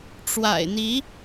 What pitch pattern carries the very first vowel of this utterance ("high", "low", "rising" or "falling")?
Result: low